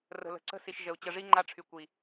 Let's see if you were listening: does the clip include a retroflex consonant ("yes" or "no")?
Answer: yes